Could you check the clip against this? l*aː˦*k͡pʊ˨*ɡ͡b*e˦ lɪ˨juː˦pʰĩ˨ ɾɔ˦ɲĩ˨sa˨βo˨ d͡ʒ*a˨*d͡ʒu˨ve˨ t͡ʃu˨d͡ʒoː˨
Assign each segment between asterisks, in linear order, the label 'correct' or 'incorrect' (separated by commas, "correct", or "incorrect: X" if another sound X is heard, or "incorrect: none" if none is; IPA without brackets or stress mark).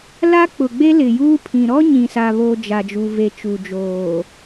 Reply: incorrect: a˦, correct, correct